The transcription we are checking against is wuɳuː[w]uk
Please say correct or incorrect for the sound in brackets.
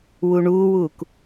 correct